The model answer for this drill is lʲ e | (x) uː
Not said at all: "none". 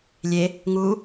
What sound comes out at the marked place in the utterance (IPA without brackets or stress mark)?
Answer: ŋ